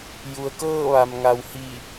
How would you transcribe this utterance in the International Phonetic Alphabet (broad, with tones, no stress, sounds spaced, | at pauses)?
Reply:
j u˩ ə̯ k ɤː˥˨ ʋ a˩ m ŋ a˩ w h i˧˩